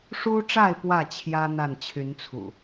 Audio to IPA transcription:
ʂ u˦ ʈ͡ʂ a˥˨ ɪ̯ p w ä˥˨ t͡ɕʰ j ä˦ n̪ a˥˨ n t͡ɕʰ y˨˦ n t͡sʰ ṵ˨˩

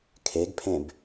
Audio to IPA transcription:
kʰ e ɡ pʰ ẽ b

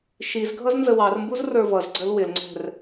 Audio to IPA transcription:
ʃ i z ɡʱ ʌ z n z ə w ɑ r m b u z r ə˞ v ʌ z ɡ͡ǀ ə l w ɪ l ŋ͡ǀ ɛ̤ r

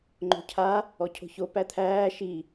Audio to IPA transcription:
ŋ͡ǃ o̤ cʰ a | ɔ cʰ o̤ ç o p æ t̪ʰ æː ʃ i

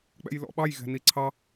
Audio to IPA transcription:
k͡p ɛ̰ j l ɔ̰ ɓ ɑ j ɣ ɛ̤ n i ǀʰ ɑ

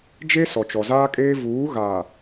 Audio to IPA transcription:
d͡ʒ e˦ s ɔ˨ t͡ʃ ɔ˨ z aː˦ kʼ eː˦ v uː˨˦ ɣ aː˨

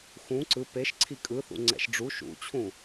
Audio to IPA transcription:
x ũ ǀ ɯ p e ʃ ǀʰ i kʼ ɯ θ ṵ ŋ͡ǀ ɛ̰ ʃ ɖ͡ʐ u ʃ ṵ t͡ɕʰ ũ

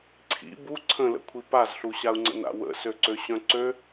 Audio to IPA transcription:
ǀʰ ḭ b u ǀʰ ə̃ l ə̰ kʷʰ i p a z ɬ u ɕ a u̯ ŋ͡ǀ ə̰ n a̰ w ə̰ s ø ǀ ø ɕ œ̃ ǀ ø

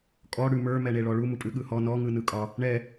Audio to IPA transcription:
kʼ ɔ ɽ ʉ m ə˞ m ɛ ɳ e ɭ ɔ ɭ u m u pʼ ʉ ɠ ɯ h ɔ n ɔ ŋ ɯ n ɯ kʼ ɒ | ɳ ɛ

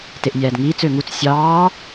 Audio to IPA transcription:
t e ʔ nʲ æː d ŋ iː t͡s ø ŋ u t͡s sʲ ɑː

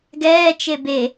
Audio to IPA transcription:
ɡ ɛː t͡ʃ e b e

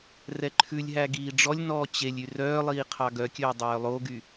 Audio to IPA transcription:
r ɛ ǃʰ ʉ lʲ ɦ æ ɡ iː ɖ͡ʐ ɔ lʲ n ɔː t͡ɕ e lʲ y r œː lˠ iː qʰ ɑ ɡ œ kʲ ɵː dˤ œː lˠ o ɡ y

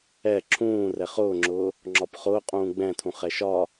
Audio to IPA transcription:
ɛ ǁʰ ũː r ɛ χ ʊː ŋ͡ǁ ʊː | ŋ͡ǁ ɒ p χ ʊː qʼ ũː ɡ͡b ɛ̃ tʰ ũ χ ɛ ʃ ɒ

